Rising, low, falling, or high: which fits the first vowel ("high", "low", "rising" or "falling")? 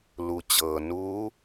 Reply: low